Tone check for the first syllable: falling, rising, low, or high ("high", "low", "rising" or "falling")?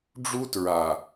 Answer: high